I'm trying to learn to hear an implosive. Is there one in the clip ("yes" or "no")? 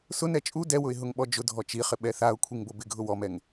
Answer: yes